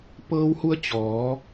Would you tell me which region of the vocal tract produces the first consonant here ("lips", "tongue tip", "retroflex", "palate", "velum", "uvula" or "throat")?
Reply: lips